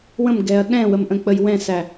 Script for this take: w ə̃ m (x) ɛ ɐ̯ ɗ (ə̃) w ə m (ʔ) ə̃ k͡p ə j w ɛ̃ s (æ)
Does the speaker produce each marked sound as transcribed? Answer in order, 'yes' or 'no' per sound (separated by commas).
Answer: no, no, yes, yes